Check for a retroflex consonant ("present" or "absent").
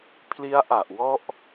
absent